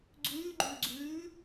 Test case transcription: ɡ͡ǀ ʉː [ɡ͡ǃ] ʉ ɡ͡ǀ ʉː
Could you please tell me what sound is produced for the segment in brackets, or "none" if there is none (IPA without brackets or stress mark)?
ɡ͡ǃ